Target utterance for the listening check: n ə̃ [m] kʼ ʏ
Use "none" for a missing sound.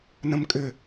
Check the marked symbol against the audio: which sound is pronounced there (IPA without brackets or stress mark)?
m